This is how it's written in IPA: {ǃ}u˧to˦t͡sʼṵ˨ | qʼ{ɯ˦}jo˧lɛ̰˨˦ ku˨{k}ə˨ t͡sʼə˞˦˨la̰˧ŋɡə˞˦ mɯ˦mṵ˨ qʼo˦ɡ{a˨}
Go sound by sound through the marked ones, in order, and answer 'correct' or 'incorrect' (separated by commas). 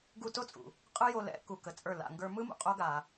incorrect, correct, correct, incorrect